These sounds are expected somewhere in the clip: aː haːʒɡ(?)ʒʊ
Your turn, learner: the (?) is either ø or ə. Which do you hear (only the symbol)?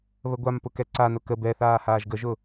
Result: ə